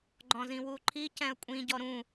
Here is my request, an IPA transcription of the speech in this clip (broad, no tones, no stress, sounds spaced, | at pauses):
ɡ͡ǃ ɔ̃ z ĩ w u ǃʰ i c ɛ̃ ə̯ kʷʼ ĩ ɟ ɔ ɾ ũ